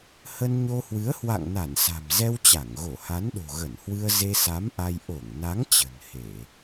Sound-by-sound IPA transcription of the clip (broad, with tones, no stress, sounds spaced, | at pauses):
h ə˧ n ɲ o˧ h w ɨ˨˦ ə̯ h w a̰˧˨ ŋ n a˧˩ n s a̤˨˩ m z ɛ˧ w t͡ɕ a˧˩ ŋ ɣ o˧˩ h a˨˦ n ɗ o̤˨˩ ɣ ə˧˩ n h w ɨ˧ ə̯ z e˧ s a˨˦ m ʔ a˧ j ʔ o˧˩ ŋ n a˨˦ ŋ t͡ɕ ə̤˨˩ n h e˧˩˨